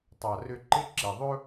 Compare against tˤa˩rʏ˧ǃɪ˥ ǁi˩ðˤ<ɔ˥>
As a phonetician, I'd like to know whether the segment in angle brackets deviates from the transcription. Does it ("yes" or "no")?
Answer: yes